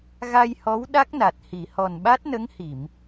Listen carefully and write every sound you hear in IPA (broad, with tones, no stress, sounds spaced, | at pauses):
ɣ a˧ j h ɔ˧˥ w ɗ a˦˥ k̚ n a˨˩ t̚ h i˨˩˨ h ɔ˨˩ n ɓ a˦˥ t̚ n ə˧˥ ŋ h i˨˩˨ m